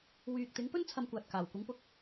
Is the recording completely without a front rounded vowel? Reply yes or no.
no